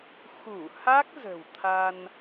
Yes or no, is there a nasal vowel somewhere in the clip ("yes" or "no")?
no